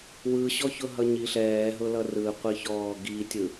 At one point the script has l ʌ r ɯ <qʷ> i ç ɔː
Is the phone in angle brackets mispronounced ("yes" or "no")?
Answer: no